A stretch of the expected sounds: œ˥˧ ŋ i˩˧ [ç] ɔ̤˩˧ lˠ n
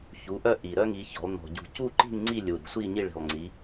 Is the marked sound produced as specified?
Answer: yes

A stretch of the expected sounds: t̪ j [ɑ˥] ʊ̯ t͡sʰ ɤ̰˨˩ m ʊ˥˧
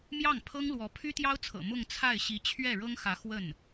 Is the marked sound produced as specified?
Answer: yes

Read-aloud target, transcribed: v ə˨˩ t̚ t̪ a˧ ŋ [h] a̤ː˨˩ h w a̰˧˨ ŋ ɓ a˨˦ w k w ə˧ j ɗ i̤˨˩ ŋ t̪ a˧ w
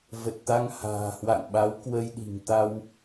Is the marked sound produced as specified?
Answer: yes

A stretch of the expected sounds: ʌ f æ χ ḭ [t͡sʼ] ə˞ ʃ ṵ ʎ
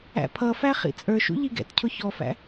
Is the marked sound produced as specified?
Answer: yes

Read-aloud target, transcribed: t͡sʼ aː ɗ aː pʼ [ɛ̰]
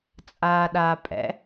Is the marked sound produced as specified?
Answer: yes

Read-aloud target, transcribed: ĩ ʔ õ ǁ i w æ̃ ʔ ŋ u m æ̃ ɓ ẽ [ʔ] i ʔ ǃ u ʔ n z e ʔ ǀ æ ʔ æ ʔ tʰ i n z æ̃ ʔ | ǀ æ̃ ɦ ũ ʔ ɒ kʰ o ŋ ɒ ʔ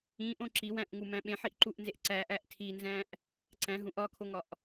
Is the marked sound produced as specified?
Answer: no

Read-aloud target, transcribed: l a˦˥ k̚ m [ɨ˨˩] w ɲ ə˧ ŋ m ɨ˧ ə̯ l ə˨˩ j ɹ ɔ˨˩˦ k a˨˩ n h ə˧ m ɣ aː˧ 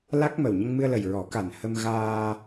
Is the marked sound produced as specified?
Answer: no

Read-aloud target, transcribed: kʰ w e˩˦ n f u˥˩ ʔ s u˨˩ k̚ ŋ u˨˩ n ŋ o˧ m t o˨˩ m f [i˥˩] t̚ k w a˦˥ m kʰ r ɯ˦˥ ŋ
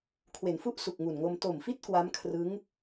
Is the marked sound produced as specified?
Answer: yes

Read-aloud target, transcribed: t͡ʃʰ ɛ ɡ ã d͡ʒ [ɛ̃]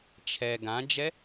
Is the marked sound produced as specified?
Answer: no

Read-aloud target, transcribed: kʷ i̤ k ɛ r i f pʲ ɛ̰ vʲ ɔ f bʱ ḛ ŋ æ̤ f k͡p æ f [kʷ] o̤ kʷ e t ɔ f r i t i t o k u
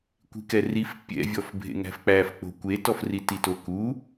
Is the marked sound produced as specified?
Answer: no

